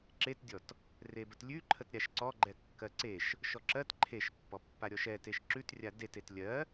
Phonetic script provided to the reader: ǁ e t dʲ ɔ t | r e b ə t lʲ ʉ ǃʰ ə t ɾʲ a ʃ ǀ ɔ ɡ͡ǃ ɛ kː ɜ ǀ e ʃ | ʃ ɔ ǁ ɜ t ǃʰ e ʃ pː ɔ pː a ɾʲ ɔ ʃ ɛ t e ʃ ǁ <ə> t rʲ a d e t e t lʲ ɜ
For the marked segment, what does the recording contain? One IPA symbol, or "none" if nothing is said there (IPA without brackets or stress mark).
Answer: ʉ